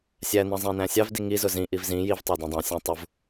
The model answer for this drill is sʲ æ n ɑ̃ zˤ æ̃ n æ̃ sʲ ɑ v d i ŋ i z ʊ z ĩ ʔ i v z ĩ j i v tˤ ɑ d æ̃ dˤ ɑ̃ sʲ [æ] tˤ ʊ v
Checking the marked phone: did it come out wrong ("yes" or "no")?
yes